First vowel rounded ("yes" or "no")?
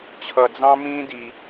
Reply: no